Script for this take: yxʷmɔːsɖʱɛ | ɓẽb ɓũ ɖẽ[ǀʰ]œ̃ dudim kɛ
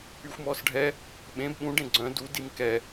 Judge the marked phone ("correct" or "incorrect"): incorrect